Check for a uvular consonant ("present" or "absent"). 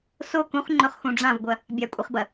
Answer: present